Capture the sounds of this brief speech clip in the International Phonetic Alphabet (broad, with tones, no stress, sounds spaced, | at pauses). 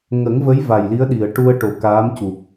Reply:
ŋ ə˨˩˦ ŋ v ə˧˥ j v a˨˩ j l i˧˥ ə̯ ɗ i˨˩˨ ə̯ ʈ u˧ ə̯ ʈ o˨˩ k aː˧˥ m c u˨˩ k̚